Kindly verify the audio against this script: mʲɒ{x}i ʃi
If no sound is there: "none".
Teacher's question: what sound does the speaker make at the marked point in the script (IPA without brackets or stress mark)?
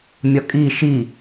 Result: kʼ